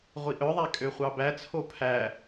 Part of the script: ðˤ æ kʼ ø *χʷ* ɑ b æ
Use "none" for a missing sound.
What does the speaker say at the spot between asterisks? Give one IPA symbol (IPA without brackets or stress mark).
χʷ